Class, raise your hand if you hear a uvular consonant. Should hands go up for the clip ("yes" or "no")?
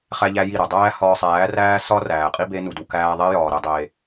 yes